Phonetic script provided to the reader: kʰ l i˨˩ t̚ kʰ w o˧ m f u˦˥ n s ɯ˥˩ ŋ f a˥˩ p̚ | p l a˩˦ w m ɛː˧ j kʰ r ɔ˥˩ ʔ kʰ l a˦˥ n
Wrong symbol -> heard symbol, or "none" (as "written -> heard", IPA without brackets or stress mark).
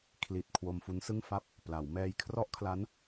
none